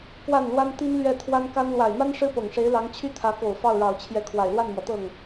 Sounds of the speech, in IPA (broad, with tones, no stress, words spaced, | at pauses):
kwa˥˩nlwa˥nt̪i˥nlɥɛ˥˩ t̪ʰwa˥n ka˥n lwa˨˩ɪ̯ma˥n ʂɻ̩˥pɤ˨˩ŋʂe˧˥ɪ̯lɑ˧˥ŋ t͡ɕʰy˥t̪ʰä˧˥ko˨˩ʊ̯ fɑ˥˩ʊ̯ɻɑ˨˩ʊ̯t͡ɕʰjɛ˧˥ kʰwa˨˩ɪ̯lwa˥˩nmwɔ˩t̪ɤ˥˩ŋ